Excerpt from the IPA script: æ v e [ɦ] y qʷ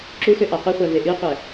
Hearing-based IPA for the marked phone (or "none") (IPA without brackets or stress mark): ʔ